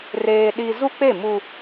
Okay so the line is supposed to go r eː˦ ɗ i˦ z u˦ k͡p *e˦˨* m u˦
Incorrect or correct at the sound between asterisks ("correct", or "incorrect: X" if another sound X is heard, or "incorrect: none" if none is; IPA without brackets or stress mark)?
correct